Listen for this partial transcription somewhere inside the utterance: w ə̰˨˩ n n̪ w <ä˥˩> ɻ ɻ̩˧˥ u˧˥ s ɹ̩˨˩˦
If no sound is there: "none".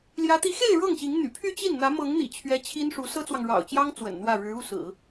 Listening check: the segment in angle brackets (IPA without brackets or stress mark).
ä˥˩